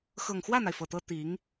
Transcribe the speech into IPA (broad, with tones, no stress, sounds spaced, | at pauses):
x ɤ˨˩ ŋ x w ä˥˩ n̪ a˩ ɪ̯ f ɤ˨˩ t̪ ɤ˥ t̪ i˧˥ ŋ